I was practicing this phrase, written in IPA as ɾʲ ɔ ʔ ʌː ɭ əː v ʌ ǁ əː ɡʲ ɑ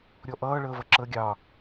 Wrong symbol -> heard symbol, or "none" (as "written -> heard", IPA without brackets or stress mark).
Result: none